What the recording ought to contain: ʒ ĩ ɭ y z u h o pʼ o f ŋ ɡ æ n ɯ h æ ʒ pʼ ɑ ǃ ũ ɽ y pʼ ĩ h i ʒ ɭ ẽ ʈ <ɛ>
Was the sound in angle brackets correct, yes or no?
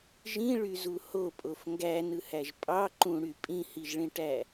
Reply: no